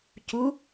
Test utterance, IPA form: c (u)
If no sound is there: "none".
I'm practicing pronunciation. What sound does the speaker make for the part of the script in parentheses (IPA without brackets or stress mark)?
u